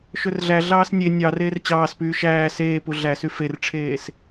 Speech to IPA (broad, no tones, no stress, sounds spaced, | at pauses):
ʃ ɵ r ɮ æ ɮ ɑː s nʲ e nʲ ɑ r eː r t͡ɕ ɑː s p yː ʃ æː s eː p u ɮ æ s y f e r ʈ͡ʂʰ eː s